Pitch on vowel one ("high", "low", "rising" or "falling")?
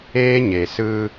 high